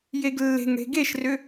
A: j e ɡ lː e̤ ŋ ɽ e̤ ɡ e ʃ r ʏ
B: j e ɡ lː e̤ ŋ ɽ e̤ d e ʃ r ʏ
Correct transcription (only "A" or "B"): A